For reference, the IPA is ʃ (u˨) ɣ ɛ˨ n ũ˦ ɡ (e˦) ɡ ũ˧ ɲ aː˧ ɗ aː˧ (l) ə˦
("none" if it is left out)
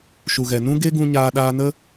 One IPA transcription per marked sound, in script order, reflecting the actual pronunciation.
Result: u˨, e˦, n

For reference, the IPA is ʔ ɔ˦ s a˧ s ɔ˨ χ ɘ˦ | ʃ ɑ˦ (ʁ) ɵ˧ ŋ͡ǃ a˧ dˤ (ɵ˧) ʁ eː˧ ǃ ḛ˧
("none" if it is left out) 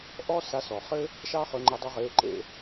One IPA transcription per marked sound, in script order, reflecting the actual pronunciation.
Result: χ, ɵ˧

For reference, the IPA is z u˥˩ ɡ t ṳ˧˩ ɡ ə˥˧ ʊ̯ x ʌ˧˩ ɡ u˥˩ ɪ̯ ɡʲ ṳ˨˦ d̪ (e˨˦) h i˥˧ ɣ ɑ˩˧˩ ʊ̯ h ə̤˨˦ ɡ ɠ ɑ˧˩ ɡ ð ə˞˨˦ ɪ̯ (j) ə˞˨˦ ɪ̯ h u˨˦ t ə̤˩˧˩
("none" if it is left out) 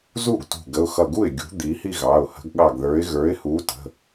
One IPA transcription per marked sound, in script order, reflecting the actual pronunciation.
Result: i˨˦, ɣ

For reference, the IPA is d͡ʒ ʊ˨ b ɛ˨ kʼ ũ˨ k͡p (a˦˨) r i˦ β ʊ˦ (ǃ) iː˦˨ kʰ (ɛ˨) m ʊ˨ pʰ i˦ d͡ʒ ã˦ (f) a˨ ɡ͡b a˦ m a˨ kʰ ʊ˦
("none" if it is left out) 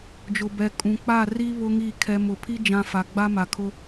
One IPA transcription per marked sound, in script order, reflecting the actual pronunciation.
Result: a˦˨, ŋ, ɛ˨, f

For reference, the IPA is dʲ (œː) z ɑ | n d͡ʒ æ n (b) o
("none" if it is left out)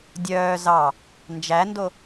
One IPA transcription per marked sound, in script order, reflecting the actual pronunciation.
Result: œː, d

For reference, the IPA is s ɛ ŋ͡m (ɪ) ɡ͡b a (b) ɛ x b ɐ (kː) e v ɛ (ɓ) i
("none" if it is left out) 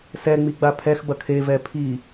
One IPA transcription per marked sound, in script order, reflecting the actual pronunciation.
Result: i, pʰ, kʰ, pʰ

